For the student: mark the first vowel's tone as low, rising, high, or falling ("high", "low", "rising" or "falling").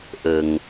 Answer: low